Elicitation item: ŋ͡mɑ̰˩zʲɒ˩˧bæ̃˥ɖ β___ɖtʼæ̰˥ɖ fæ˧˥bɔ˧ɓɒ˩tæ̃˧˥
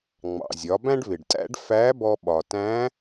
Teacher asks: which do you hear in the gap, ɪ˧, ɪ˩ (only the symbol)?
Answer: ɪ˩